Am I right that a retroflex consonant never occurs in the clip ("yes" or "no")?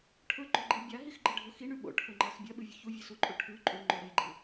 no